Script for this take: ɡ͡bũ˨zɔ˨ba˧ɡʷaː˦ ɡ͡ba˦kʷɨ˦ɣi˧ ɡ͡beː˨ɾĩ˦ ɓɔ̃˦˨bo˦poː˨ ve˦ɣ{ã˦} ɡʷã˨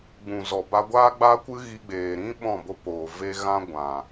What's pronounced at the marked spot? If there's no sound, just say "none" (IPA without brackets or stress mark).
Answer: ã˦